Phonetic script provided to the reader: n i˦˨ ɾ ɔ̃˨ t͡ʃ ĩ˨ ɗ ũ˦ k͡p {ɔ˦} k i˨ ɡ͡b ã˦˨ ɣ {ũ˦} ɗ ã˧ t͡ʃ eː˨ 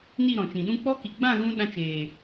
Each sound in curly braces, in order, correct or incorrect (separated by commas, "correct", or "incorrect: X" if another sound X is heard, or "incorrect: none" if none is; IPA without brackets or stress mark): correct, incorrect: ũ˧